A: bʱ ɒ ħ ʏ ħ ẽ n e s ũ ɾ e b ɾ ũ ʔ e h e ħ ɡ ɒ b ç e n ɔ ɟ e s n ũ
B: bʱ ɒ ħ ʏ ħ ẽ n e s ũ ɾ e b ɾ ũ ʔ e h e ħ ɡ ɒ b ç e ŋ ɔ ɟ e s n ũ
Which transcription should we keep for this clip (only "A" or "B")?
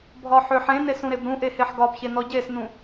A